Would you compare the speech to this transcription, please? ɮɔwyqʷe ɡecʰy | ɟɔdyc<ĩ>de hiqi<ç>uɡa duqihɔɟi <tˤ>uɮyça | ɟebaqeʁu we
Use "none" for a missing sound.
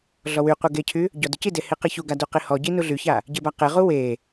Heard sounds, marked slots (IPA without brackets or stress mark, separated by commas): i, ç, n